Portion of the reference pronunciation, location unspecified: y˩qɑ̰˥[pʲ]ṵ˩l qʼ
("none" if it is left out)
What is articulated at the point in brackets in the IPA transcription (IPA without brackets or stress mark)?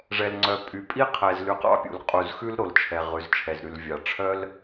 pʲ